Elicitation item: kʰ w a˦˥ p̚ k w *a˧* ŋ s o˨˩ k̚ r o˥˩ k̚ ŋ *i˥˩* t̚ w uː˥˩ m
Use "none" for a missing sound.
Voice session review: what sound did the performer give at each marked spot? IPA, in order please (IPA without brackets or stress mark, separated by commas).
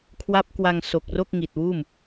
a˧, i˨˩